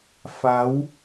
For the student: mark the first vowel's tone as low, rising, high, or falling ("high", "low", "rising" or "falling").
rising